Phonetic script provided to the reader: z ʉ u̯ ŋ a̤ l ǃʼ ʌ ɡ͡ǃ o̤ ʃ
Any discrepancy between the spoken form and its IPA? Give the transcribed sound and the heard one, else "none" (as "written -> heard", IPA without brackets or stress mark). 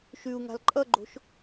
z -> ʃ